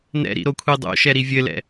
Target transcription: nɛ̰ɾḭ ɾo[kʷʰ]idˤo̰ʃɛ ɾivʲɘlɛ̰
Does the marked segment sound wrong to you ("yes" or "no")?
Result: no